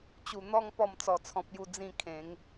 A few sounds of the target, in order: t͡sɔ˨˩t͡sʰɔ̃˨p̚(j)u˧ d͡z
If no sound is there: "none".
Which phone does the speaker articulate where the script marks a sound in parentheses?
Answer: j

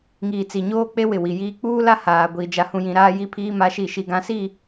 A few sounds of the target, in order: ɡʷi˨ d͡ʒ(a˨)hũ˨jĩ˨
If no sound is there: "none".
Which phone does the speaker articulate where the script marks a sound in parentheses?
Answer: a˨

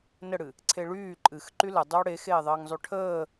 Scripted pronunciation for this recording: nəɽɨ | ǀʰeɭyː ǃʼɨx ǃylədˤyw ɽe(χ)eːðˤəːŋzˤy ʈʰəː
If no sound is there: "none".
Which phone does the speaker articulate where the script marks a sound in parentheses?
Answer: x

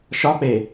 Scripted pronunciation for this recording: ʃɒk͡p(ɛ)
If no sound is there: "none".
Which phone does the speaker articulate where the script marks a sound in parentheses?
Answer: e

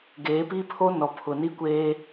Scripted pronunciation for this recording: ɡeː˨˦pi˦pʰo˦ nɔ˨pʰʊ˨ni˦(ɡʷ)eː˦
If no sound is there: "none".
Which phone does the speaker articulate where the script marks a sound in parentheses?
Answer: kʷ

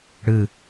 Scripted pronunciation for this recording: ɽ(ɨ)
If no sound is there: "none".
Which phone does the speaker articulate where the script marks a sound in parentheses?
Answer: ɨ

